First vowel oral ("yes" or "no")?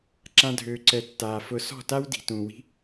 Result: no